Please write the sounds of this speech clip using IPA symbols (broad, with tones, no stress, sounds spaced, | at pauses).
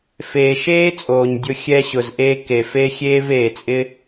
f eː˨ ʃ eː˦ t͡sʼ oː˨ ɲ dʲ ʊ˧ xʲ ɛ˧ ɕ ʊ˨ z ʔ eː˧ k e˨ f e˦ xʲ eː˦ v eː˨ t͡sʼ ɪ˦